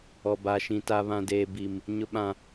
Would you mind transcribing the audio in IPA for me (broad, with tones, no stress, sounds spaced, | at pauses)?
ɔ˦ b a˦ ʃ ĩ˦ t a˦ β ã˦ d eː˦ b i˦ m | ɲ ʊ˦ ɓ ã˦